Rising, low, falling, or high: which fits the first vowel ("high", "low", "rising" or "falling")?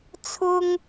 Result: high